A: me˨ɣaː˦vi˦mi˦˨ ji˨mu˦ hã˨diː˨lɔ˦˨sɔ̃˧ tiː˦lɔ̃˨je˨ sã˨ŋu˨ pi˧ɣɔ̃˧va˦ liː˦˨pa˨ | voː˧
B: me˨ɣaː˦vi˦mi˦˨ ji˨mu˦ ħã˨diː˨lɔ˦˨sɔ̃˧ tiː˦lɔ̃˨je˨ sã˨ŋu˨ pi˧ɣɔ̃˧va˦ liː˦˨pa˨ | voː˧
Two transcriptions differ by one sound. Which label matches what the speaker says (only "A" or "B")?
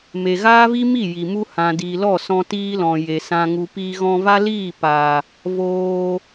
A